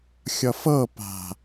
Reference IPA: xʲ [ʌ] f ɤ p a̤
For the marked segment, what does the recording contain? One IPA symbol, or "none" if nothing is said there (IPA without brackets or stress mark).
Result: ʌ